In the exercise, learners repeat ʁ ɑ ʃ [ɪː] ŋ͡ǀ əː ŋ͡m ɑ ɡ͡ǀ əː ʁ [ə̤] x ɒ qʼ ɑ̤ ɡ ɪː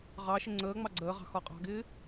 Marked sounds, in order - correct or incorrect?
incorrect, incorrect

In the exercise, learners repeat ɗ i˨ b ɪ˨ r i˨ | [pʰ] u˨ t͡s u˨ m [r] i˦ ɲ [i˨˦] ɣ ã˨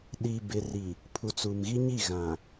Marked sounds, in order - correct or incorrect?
correct, incorrect, incorrect

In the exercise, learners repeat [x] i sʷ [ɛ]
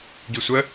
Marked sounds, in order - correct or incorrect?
incorrect, incorrect

